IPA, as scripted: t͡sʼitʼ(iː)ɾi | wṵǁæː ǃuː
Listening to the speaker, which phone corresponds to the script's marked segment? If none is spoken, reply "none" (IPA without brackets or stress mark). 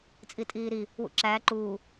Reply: iː